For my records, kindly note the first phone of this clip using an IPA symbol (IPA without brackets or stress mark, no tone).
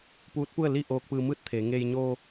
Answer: p